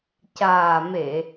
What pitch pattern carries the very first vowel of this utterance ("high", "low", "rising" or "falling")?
low